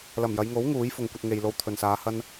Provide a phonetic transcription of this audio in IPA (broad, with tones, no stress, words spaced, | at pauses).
lɐ˨˩mjɐ˨˧jŋo˨˥w ŋuː˨˥jfʊ˨ŋkʷɐ˧t̚ ŋe˨jlo˧wt̪ʰɵ˨nsaː˨˧ hɐ˧n